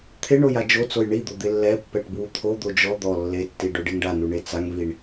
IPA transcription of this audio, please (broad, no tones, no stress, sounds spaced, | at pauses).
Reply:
t̪ʰ ɪ ɳ o j a d͡ʒ o t͡s o j ɳ i d̪ o d̪ ɪ lː ɛ pː ɛ ʈ b w u t̪ʰ o d̪ o d͡ʒ ɔ d̪ ɔ lː e tː i ɖ o ɖ e ŋ ɖ a n u ɳ e t͡s a ŋ v i ɳ